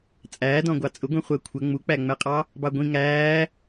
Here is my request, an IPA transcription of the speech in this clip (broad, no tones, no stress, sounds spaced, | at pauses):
t͡sʼ æː d ɔ̃ ɡʷ ɑ t͡sʼ ʊ ɡʷ ĩ χʷ əː kʷʰ ə ŋ͡m u k͡p æ ŋ͡m ɛ qʼ ɑ | b ɑ ɡʷ ĩ ŋ æː